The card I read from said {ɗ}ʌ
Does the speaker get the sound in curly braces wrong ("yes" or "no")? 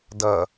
yes